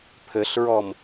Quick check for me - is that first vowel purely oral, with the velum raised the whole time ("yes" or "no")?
yes